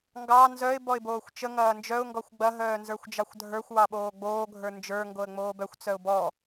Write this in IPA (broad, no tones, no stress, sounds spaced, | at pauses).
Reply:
ŋ ɡ ɑ n z œ ɪ̯ b ɔ ɪ̯ b oː xʷ t͡ʃ ə ŋ ɐː n d͡ʒ œ ʊ̯ ŋ ɡ ɔ xʷ ɡ͡b ɐ ɦ œː n z ə˞ xʷ d͡ʒ ɑ xʷ dʱ ə˞ xʷ w ɑ ɓ oː ɡ͡b oː ɡʱ ə˞ n d͡ʒ ə˞ ŋ ɡ o ə̯ ŋ͡m oː b œ xʷ t͡s œ ʊ̯ b ɔ